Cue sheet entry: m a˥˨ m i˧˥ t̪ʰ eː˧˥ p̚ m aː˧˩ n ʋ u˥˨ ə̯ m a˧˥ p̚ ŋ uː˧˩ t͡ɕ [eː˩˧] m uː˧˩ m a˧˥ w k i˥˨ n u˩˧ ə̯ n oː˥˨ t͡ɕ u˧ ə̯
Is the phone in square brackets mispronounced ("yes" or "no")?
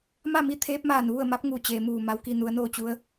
no